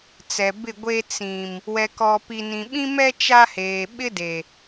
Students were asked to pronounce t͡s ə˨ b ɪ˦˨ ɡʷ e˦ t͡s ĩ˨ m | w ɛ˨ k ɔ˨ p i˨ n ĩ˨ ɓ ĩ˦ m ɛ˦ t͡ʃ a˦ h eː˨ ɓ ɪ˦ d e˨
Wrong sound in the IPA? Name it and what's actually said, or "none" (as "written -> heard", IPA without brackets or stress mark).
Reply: ə˨ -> ɛ˨